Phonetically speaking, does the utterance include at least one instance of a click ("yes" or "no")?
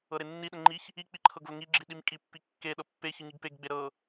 yes